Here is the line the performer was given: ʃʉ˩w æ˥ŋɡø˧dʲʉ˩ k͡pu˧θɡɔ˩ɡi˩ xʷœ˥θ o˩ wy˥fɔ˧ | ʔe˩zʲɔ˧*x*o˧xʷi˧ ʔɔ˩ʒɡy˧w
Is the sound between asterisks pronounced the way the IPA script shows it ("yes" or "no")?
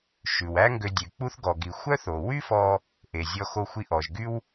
yes